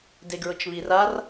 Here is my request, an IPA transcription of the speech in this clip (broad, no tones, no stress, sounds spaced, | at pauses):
d e ɡ ɹ ʊ t͡ʃ β i r a r